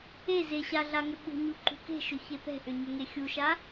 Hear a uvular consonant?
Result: no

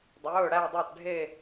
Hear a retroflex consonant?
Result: yes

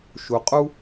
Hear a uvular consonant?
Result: yes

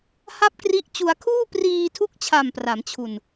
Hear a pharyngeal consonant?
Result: no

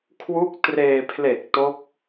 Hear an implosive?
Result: no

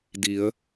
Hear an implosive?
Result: no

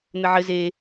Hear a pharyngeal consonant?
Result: yes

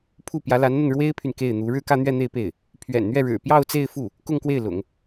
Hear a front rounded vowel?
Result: yes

